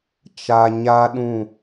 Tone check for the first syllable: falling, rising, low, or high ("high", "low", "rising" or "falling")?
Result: low